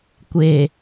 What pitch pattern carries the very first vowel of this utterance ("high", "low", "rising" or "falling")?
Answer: low